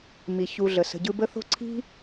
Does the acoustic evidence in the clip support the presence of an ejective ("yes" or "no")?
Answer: no